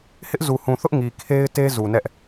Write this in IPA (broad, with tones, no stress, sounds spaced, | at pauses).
h ɪ˦ ʔ z u˨ h ũ˨ θ ʊ˦ ʔ ŋ i˨ kʰ e˦ ɪ̯ t e˦ z u˨ n ɛ˦ ʔ